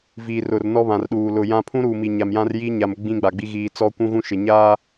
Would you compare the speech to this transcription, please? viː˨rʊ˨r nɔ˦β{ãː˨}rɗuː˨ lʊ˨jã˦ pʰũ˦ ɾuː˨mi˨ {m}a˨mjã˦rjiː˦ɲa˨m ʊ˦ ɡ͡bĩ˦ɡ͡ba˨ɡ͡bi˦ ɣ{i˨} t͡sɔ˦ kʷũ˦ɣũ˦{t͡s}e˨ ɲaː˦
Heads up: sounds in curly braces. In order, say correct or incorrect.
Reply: incorrect: ã˨, incorrect: ɲ, incorrect: iː˨, incorrect: ʃ

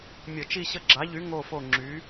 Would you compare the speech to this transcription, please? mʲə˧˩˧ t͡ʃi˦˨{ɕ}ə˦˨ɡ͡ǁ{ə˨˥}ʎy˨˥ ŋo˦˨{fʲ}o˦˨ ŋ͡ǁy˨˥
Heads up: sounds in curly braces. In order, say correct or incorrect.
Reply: correct, incorrect: a˨˥, incorrect: f

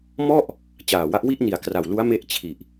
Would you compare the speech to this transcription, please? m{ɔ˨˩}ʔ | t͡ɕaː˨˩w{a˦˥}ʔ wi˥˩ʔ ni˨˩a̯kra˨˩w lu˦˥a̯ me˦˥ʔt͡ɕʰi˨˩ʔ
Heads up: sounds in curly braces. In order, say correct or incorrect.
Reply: incorrect: ɔ˥˩, correct

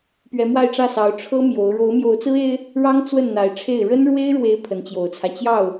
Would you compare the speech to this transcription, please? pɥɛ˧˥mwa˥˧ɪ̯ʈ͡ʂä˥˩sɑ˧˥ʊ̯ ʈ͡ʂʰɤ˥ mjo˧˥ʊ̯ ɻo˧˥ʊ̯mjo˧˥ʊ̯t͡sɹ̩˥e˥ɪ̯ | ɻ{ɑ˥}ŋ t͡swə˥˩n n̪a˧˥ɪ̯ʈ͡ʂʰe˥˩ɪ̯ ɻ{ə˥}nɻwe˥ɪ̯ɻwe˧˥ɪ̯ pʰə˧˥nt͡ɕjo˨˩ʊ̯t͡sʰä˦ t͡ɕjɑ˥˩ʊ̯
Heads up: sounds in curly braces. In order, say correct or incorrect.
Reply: correct, correct

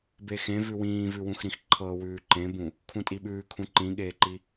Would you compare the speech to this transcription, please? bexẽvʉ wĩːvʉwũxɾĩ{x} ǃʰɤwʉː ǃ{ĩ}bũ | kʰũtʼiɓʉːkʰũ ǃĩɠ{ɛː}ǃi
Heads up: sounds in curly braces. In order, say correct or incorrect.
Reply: correct, incorrect: ẽ, incorrect: eː

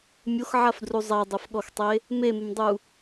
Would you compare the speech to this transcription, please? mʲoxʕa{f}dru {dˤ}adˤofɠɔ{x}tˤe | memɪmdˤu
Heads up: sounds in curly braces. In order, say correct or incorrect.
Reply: correct, incorrect: zˤ, correct

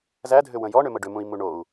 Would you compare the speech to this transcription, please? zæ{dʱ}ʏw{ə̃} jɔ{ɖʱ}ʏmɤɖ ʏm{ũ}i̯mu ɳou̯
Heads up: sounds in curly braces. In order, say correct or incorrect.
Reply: correct, correct, incorrect: ɳ, correct

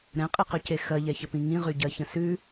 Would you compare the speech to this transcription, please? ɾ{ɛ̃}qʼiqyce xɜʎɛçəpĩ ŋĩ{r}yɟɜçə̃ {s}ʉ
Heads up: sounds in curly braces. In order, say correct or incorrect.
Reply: correct, incorrect: ʁ, correct

